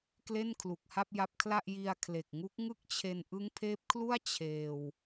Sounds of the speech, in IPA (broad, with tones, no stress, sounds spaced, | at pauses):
k l e˥˩ n kʰ l u˨˩ k̚ h a˥˩ p̚ j a˦˥ p̚ kʰ l a˥˩ ʔ j i˧ a̯ kʰ l e˨˩ k̚ ŋ u˦˥ k̚ ŋ ɯ˥˩ k̚ t͡ɕʰ e˧ n ʔ ɯ˦˥ ŋ pʰ eː˦˥ p̚ kʰ l u˥˩ a̯ t͡ɕʰ eː˧ w